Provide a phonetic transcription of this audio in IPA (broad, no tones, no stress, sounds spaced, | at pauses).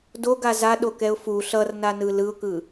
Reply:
d o ɡ a z a ɗ o k ɛ ʊ̯ f u ɬ ʌ r n a n ɯ l ɯ ʊ̯ k ɯ